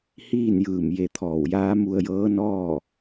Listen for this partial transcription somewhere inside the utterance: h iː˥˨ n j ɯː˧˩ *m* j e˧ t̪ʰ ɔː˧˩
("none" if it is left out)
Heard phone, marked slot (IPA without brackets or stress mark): m